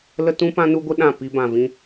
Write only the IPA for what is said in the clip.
l ə˦ t ũ˦ p ã˦ n u˦ ɡʷ ə˦ ɗ ã˦˨ p i˧ b ã˨ v ĩ˧

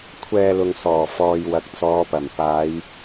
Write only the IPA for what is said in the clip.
kʷʰ ɛː˧ l ʊ˨ ŋ s ɔː˨˩ f ɔː˨ j w ɐ˨˥ k̚ t͡s ɔː˨˧ p ɐ˨˩ m p aː˨˧ j

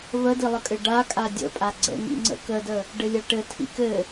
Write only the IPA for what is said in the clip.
β ə d i lˠ ə kʼ ɘ ɖ a kʼ a dʲ ə̰ pʼ a ɡ͡ǀ ə̰ ŋ ḭ ŋ͡ǀ ə̰ k ə d ə | ɖ ɘ lʲ a ʈ ɘ tʰ ḭ k ɘ

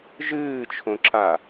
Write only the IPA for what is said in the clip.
ʒ ɨː t͡ʃʰ õ ǁ a

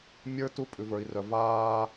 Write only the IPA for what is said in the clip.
mʲ ə˞˦ t u˦ pʼ ʉ˨ v ə˞˨ i̯ r œ˨ v aː˦

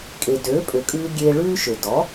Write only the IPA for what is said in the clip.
kʼ e˩ d øː˩˥ pʼ ø˩ kʼ ʉː˧ ɡʲ eː˧ ɭ ʉː˥ ʃ ø˩ d ɔ˩˥

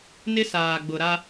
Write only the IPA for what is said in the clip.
n ɪ˦ s aː˨ ɡ͡b ʊ˨ ɾ a˦

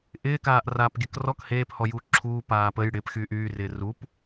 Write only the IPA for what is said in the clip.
ʔ ɪː k aː ʔ r aː p ɡʲ ə k r ɔ k h eː p h ɔ j uː ǁʰ uː p aː p ə j ɽ ɪ p x yː ʔ yː r ɪː r u p

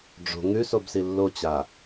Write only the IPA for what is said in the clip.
ɖ͡ʐ o̤ ŋ ʉ s o b s i lː o t͡ɕ a

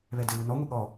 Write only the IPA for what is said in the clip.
β ɛ d ɘ β u n ɔ ŋʷ e ɠ ɔ

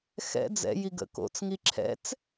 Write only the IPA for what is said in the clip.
x ɛ̰ d͡z ɛ̰ j i ɡ ə̰ k o̰ t͡s ŋ i ǁʰ ɛ̰ t͡s

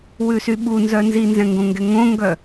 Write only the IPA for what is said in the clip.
w ʉ s y ɓ u n z œ n z i n z ɛ̃ ŋ ɡ õ ŋ ɡ ɛ ŋ õ ŋ ɡ œ

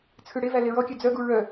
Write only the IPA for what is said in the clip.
t͡sʰ ʉ ɽ e v æ l e ɹ ɔ kʲ ø d͡z œ ɡ u ɹ œ

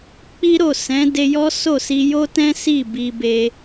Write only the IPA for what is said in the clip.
k͡p i˦ ɾ o˦˨ s ɛ̃˨˦ d e˧ j ɔ˦ s o˦˨ s i˧ j o˦ t ɛ̃˦ s i˦˨ b i˧ b e˧

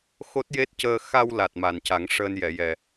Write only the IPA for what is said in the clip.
x o˦˥ t̚ j e˦˥ t̚ c əː˧ x a˧ w l a˨˩ t̚ m a˨˩ n c a˨˩˦ ŋ ʂ əː˧ n j ɛ˨˩˨ j ɛ˨˩

